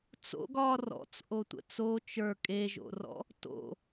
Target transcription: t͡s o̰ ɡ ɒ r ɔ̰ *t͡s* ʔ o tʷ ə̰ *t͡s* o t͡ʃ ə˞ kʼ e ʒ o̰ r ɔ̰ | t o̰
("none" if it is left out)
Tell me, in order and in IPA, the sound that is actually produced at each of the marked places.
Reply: t͡s, t͡s

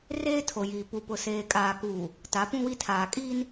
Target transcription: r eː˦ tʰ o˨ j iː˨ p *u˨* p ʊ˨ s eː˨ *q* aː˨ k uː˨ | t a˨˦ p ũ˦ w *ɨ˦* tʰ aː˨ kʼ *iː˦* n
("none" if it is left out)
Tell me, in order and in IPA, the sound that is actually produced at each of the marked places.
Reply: u˨, kʼ, i˦, iː˦

